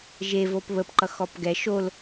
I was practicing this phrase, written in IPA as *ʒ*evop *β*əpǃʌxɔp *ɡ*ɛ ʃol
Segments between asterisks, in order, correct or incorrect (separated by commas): correct, correct, correct